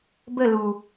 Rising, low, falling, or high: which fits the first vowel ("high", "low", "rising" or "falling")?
falling